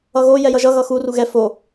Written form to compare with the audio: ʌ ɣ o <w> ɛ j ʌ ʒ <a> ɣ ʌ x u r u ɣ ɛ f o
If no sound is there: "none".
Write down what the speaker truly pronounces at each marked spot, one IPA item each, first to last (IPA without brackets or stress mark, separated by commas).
j, ʌ